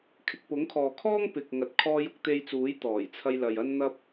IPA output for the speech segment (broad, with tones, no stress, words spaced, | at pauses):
kʰɪ˨k̚pʊ˨˥ŋkʰɔː˨kʰɔː˥ŋ pɪ˨k̚ŋɐ˨t̚ kʰɔː˧jʊ˧k̚t̪e˧jt͡suː˨˥j t̪ɔː˨˩jt͡sʰɐ˧jlɐ˨j ɐ˧nn̪ɐ˧p̚